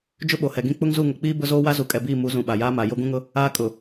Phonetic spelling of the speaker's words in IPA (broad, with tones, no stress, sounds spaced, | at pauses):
d͡ʒ ʊ˦ ɓ o˨ h ɛ˨ ɡ ĩ˦ k͡p ʊ˦ ŋ z u˦˨ ŋ ʊ˨ k͡p iː˦ b ʊ˦ z oː˦ w a˦ z u˨ kʼ ɛ˨ b iː˦˨ m u˨˦ z ũ˨ ɓ a˨ j aː˦ m a˨ j o˦ ɡ ũ˦ ŋ ʊ˦ | aː˦ kʼ ʊ˨